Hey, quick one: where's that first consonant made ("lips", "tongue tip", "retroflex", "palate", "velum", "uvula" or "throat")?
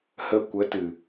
throat